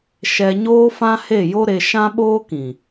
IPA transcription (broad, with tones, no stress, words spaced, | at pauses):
ʃɛ˧ɲoː˦ fã˦he˦˨jo˦ɾe˧ ʃã˦ɓoː˦kĩ˨